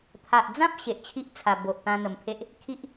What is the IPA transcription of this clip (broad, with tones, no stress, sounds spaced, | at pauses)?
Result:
t̪ʰ a˨ ʔ d͡z ã˦ p̚ ɕ e˨ ʔ t͡ɕʰ i˦ ʔ t͡sʰ a˨˩ b o˨ ʔ t̪ ã˧ n̪ ə˨˩ m pʰ e˦ ʔ | kʰ i˦ ʔ